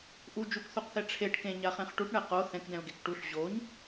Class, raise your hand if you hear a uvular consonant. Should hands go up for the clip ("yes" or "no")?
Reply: yes